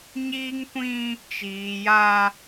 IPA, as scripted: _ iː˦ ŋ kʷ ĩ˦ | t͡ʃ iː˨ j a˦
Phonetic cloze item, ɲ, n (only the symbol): ɲ